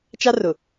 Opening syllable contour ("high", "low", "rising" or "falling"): high